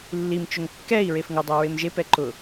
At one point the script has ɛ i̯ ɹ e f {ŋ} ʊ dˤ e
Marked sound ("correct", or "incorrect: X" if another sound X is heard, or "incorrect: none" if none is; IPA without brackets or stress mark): correct